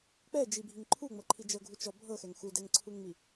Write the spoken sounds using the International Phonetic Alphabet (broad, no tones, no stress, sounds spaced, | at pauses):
k͡p ɛ d͡ʒ i bʱ i ŋ ǃʰ u ŋ͡m ɤ ǃʰ i d͡ʒ ɤ ɡʱ u t͡ʃ ɔ bʱ ɤ x ɛ ŋ x u d ɛ ŋ ǀʰ u ŋ ŋ͡m i